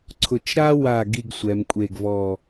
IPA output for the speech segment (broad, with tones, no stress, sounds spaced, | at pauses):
ǀʰ ʊ˧˩ t͡ʃ ɾ a˥ w a˧˩ ɡ i˥˧ ɡ sʷ ɛ˩˧ m kʷʼ e˧˩ ɡ v ɔ˧˩